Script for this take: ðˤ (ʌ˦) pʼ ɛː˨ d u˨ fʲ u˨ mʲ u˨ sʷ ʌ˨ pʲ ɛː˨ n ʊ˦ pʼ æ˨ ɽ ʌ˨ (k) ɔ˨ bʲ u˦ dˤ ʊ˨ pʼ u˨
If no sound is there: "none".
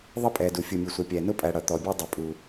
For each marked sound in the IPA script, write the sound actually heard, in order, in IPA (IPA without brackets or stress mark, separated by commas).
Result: ʌ˦, t̪